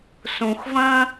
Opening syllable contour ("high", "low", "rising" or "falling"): low